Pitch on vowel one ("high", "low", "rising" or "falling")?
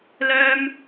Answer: high